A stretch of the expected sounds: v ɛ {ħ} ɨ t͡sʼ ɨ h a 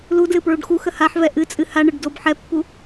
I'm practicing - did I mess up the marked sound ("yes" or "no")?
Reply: yes